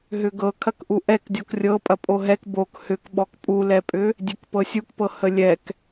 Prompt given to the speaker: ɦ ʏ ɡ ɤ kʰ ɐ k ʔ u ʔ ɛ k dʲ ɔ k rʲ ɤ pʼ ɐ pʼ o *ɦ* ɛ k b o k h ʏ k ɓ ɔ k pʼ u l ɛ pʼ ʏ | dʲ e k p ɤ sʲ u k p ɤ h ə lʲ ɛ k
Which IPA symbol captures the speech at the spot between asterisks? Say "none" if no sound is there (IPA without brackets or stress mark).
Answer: ɦ